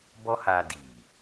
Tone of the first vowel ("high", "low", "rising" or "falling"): high